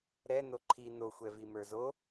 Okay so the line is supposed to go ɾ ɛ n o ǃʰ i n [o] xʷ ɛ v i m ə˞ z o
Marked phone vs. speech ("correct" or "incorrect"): correct